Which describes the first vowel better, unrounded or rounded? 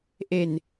unrounded